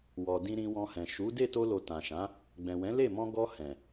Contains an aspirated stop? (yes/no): no